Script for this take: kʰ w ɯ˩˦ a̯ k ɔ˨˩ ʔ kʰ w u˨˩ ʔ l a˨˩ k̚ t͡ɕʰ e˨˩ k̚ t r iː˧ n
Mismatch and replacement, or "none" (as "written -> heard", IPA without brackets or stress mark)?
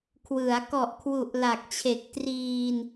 none